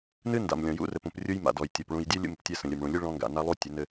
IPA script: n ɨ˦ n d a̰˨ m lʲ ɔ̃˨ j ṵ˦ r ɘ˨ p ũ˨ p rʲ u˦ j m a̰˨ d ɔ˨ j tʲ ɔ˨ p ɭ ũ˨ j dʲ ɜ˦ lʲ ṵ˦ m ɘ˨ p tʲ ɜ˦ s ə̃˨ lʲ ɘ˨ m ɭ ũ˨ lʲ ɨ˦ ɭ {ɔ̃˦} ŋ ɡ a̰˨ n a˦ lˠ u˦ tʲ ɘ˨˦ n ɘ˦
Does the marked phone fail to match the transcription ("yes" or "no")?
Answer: no